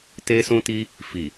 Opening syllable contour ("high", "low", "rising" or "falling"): high